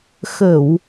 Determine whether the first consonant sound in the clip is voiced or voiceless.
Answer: voiceless